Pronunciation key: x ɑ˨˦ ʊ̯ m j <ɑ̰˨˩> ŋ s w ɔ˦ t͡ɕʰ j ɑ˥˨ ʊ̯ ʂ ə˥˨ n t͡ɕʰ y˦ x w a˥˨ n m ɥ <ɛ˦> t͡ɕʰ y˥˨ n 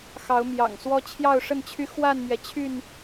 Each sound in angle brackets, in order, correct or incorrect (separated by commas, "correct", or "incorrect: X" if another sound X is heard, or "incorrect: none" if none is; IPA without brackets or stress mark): correct, incorrect: ɛ˩